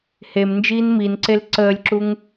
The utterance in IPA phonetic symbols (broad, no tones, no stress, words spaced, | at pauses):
hemnd͡ʒiːn minǀel ǀəːlʲǁuŋ